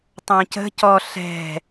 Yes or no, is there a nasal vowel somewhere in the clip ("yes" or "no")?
yes